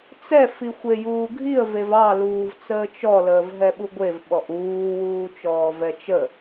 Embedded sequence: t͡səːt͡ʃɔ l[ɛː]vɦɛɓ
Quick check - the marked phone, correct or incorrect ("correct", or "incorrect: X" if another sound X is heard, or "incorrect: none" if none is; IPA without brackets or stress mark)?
incorrect: əː